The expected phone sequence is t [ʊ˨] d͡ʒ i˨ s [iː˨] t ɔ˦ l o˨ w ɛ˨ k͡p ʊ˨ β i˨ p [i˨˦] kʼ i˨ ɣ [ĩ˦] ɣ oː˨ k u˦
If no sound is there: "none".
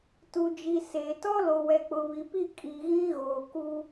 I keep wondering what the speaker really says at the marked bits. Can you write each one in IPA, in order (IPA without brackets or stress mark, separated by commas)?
u˨, eː˨, i˦˨, ĩ˦